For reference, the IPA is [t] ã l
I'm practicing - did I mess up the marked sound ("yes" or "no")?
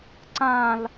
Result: yes